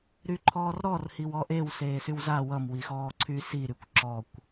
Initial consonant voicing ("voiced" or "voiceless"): voiced